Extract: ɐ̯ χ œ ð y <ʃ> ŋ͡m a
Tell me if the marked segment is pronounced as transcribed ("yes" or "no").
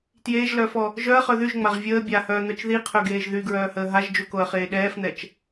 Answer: no